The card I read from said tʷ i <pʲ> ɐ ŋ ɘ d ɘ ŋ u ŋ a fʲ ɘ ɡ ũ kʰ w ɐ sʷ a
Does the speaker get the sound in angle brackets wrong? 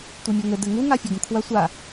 yes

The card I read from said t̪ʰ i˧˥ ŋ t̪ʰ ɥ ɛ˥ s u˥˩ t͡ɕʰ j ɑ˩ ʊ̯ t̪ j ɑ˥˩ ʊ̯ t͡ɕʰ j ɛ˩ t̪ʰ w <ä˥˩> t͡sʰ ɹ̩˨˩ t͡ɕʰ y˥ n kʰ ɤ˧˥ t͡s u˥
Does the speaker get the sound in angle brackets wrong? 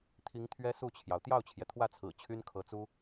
no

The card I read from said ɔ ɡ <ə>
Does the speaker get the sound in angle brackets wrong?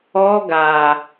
yes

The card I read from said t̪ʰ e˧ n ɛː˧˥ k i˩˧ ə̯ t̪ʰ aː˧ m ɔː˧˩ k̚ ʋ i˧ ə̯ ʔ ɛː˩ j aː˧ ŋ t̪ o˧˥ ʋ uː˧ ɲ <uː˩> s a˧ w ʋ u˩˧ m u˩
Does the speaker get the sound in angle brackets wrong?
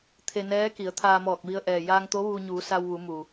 yes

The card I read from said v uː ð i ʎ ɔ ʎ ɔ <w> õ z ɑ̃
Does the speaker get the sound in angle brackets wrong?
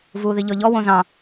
no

